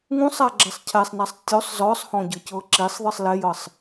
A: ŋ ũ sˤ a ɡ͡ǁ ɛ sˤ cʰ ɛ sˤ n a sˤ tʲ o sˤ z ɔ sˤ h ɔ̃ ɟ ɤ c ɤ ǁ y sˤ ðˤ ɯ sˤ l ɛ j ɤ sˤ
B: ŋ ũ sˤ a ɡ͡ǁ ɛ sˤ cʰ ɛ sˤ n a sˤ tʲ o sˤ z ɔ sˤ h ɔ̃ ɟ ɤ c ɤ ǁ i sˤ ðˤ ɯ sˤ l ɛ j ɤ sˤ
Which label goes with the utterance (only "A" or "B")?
B